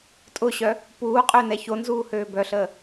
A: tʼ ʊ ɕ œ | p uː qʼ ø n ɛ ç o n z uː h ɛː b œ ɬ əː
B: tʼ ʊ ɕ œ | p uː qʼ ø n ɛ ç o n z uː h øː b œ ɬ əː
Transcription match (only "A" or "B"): B